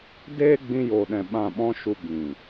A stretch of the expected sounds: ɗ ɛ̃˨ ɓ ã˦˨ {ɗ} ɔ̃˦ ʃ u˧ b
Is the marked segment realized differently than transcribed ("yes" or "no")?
yes